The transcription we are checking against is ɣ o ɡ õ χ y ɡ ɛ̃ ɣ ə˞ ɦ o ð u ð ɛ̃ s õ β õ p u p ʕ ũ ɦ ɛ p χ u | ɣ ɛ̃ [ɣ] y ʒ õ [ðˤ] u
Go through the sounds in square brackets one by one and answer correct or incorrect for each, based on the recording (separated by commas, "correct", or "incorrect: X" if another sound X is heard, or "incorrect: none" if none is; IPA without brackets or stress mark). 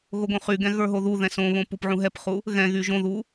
correct, incorrect: ð